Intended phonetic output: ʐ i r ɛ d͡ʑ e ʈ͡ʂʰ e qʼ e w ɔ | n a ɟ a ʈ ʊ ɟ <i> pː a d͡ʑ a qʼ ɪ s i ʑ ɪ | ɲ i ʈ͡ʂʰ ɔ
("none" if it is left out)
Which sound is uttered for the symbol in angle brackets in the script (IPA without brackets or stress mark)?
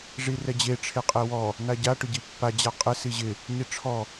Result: i